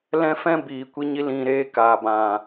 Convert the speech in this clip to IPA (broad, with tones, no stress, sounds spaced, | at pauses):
l ɛ̃˦ f ɛ̃˦ b iː˨ kʷ i˧ ɲ i˧ l ĩ˨ ɾ eː˧ k aː˨ b ã˨